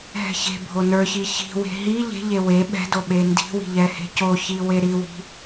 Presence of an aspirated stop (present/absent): absent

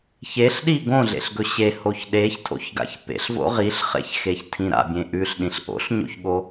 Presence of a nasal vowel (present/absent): present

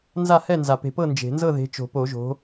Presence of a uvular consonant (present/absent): absent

